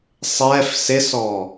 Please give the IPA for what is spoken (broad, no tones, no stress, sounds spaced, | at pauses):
sˤ ɛ f s ɪ s ɔ